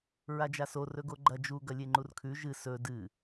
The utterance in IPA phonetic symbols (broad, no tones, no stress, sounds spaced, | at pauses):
ɹ a d͡ʒ a s o r ɵ ɡ o ɡ͡ǃ ɐ d͡ʒ u ɡ ɐ lʲ e ŋ͡ǃ u r kʰ ʉ ʒ ɨ s ɵ d ɨ